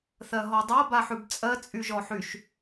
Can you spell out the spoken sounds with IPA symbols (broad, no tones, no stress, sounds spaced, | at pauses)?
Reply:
θ ɜ ɦ ɔ dˤ a b a ħ ʉ b t͡sʼ ɜ t͡sʼ y ʒ ɔ ħ y ʃ